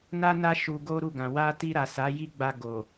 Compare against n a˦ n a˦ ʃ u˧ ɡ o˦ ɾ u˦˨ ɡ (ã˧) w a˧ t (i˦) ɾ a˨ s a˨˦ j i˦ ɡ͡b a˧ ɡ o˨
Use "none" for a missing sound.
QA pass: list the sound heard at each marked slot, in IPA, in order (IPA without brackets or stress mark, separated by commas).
ã˨, i˧